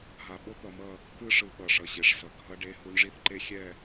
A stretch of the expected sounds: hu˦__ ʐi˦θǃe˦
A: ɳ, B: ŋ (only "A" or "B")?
A